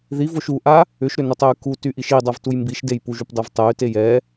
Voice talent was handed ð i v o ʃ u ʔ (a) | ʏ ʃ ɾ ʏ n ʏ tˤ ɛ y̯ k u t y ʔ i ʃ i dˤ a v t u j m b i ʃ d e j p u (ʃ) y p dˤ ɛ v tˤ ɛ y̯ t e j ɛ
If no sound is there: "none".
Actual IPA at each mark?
a, ʒ

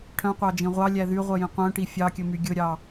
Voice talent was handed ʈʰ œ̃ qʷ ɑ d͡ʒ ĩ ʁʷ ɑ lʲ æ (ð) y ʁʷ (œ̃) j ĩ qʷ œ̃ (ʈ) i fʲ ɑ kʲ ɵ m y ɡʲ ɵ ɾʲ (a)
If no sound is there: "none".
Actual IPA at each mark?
ð, œ, ʈ, ɑ

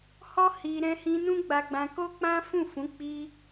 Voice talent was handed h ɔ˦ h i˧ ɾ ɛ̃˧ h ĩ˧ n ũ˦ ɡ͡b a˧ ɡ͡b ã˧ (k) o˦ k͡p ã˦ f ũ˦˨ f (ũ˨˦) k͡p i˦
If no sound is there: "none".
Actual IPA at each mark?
k, ũ˨˦

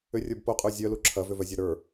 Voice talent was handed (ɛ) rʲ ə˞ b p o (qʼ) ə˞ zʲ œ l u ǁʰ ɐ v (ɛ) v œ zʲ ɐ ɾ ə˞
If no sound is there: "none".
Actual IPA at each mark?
ʏ, qʼ, ʏ

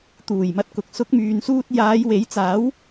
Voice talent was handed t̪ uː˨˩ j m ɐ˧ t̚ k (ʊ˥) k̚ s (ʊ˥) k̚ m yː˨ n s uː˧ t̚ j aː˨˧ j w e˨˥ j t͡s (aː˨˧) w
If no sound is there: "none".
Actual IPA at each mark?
ʊ˨, ʊ˨˥, aː˨˥

